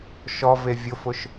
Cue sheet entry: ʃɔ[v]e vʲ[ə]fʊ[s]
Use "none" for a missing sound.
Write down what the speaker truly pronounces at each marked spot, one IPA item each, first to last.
v, ʊ, ʃ

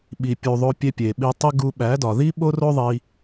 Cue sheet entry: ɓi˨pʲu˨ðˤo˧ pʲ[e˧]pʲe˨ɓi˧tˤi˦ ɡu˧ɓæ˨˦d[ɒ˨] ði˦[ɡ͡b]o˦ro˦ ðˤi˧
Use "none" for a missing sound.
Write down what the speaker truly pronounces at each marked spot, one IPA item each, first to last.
e˧, ɒ˨, ɓ

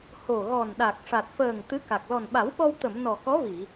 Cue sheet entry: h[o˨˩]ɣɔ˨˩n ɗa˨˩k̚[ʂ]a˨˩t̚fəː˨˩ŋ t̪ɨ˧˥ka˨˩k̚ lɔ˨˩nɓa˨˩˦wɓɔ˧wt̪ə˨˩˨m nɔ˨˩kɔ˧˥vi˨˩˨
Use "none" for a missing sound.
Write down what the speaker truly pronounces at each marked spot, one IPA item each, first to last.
o˨˩, ʂ

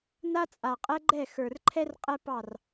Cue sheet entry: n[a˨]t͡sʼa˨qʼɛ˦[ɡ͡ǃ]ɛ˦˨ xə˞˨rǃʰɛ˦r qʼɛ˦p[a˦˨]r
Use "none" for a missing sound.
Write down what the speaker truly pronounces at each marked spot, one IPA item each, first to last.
a˦, ɡ͡ǃ, ɑ˦˨

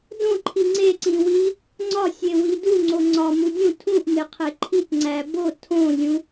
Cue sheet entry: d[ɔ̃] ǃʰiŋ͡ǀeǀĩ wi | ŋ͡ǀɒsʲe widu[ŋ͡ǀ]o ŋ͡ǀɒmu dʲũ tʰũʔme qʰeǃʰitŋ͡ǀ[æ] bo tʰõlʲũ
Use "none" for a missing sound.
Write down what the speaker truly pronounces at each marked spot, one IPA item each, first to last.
õ, ŋ͡ǀ, æ

